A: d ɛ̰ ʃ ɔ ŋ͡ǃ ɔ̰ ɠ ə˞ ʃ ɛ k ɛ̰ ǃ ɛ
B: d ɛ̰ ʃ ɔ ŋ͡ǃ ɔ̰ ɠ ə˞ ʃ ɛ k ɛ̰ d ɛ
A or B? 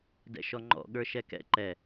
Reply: A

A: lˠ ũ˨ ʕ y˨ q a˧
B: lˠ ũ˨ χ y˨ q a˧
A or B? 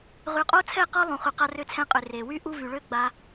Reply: B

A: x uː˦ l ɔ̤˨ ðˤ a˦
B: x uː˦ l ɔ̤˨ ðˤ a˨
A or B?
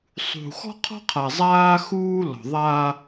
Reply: A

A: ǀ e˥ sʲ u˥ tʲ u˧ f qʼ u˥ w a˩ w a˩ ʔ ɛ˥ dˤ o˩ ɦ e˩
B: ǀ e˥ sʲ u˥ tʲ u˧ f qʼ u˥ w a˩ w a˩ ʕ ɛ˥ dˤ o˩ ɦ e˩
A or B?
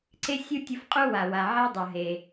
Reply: B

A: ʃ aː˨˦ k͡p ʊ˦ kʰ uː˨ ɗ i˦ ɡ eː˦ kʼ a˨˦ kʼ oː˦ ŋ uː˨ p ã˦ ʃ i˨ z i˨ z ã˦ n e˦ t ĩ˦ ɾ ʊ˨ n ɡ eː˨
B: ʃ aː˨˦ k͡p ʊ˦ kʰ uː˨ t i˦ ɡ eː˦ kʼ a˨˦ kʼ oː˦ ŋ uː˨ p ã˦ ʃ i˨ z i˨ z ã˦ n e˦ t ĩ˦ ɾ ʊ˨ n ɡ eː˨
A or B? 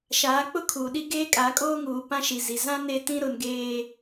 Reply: A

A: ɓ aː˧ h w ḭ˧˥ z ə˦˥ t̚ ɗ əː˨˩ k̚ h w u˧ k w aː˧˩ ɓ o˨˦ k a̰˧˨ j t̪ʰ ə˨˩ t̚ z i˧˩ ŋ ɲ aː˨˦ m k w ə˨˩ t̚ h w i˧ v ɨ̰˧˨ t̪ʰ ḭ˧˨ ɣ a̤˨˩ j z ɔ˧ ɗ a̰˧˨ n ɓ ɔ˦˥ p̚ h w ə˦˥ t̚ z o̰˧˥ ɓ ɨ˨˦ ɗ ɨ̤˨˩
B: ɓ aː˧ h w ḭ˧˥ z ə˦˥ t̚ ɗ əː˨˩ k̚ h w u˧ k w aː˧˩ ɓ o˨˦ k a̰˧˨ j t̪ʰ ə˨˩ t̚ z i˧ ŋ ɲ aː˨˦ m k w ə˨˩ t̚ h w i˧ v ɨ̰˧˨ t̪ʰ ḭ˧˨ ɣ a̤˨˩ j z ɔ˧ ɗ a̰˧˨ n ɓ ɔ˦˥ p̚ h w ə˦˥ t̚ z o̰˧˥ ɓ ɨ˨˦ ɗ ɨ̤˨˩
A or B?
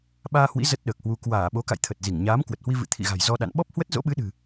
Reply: A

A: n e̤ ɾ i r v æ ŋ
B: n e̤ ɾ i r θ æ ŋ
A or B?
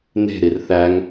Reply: B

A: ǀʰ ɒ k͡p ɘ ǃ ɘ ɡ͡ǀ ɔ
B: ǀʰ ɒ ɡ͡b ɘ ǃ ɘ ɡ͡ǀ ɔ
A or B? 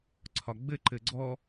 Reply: B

